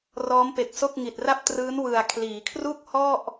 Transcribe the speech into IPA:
r ɔː˦˥ m p e˨˩ k̚ s o˥˩ k̚ ŋ i˨˩ t̚ r a˥˩ p̚ t r ɯː˦˥ n w ɯ˨˩ a̯ kʰ l iː˩˦ kʰ r u˥˩ k̚ h ɔ˥˩ ʔ

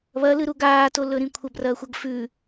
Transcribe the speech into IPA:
β ɐ l ɨ ɾ u ɡ aː t o l ɵ ɾ ĩ kʷʰ ɐ b r ɐː xʷ ɐ ɡ f ʉ

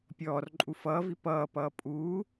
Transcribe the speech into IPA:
pʲ ɔː r ǃʼ u f ʌː v i p ʌː p ʌː pʼ uː

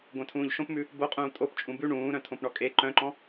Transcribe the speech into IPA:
ɡʷ œ̃ tʰ ũː ʎ ʃ õ p m ʉ | b o qʼ ũː tʼ o p t͡ʃʼ ũ b ʉ ɳ ũː ɾ œ̃ tʰ õ p ɳ ɔ kʼ e ǃ œ̃ ǃ ɔ̃

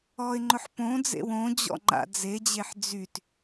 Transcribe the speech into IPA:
ɔ ɪ̯ ŋ͡ǃ ʊ ħ p õ d͡z ḛ w õ d͡ʑ ɔ̰ ŋ͡ǃ a̰ d͡z e d͡ʑ e ħ d͡z y t

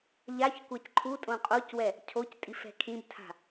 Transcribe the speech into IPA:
ʎ a ç kʷ a c ǃʰ u tʼ õ qʼ o c w ɛ | cʰ o c tʼ i f ɛ̤ kʰ ĩ b tʰ a̤

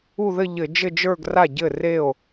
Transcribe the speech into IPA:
u˥˧ ð ɘ˥˧ ʎ ɘ˧˩˧ d͡ʒ ɘ˥˧ d͡ʒ ə˞˥˧ ɡ r a˥˩ ɟ ɘ˥˩ r e˥˩ o̯

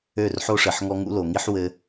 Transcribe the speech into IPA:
ø˦˨ r ħ o˦ ʂ ɘ˨ ħ ŋ ɔ˦ ŋ ṵ˦ l o˨ ŋ i˦ ħ w ɘ˦

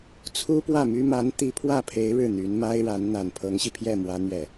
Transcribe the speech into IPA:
t͡sʰ u˥ p w ä˥˩ m y˥ m a˧˥ n t̪ i˧˥ pʰ w ä˥˩ pʰ e˧˥ ɪ̯ ɻ ɻ̩˥˩ n̪ y˧˥ n m a˥ ɪ̯ ɻ a˧˥ n n̪ a˨˩ n pʰ ɤ˧˥ ŋ ɕ i˧ pʰ j ɛ˥˩ m w ä˥ n̪ ɥ ɛ˥˩

